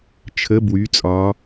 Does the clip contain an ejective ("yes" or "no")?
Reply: yes